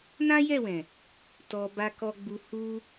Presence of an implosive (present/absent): absent